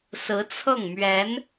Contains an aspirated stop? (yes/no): yes